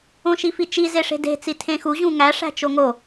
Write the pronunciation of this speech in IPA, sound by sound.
õ ʃ i f i t͡ʃ i z e ʂ e̤ d e̤ t͡s i tʰ ẽ x u ʑ ũ ŋ æ ʂ æ̤ t͡ʃ o ŋ o

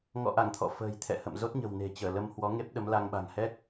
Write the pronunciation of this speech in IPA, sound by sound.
ŋ ɔ̰˧˨ ʔ a˧˩ ŋ t̪ʰ ɔ̰˧˨ f ə̤ː˨˩ j t̪ʰ ɛ̰˧˨ h ə̰˧˨ m z o˦˥ t̚ ɲ ə̤˨˩ w n e̤˨˩ t͡ɕ əː˧˩ l ə˧ m h w ɔ˨˦ ŋ e˦˥ p̚ ɗ ə˨˦ m l a˧ ŋ ɓ a̤˨˩ ŋ h ɛ˦˥ k̚

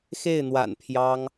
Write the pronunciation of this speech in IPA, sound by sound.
x e˥˩ ɪ̯ n̪ w a̰˨˩ n pʰ j ɑ˥ ŋ

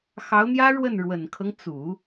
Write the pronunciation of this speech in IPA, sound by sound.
x ɑ˧˥ ʊ̯ n̪ j ä˥ ɻ w ə˥˩ n ɻ w ə˨˩ n kʰ ɤ˦ ŋ t͡s u˨˩˦

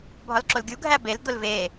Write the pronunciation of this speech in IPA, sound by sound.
bʱ ɒ l ǁ o l ɡʲ u ɡʱ æ b e l d̪ o l v e

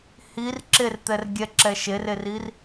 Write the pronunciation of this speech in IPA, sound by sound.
h i r ǁ e r t̪ ɛ r ɡʲ ɛ ǁ ɛ ʃ e r e r i r

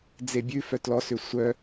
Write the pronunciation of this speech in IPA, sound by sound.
d͡z e bʲ ʉ f œ t l ɔ s ʏ sʷ œ

